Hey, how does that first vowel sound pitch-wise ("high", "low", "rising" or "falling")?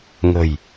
low